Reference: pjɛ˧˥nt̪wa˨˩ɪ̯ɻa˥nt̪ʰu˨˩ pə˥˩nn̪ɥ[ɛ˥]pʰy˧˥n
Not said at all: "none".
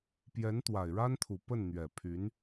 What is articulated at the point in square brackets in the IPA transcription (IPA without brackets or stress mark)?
ɛ˨˩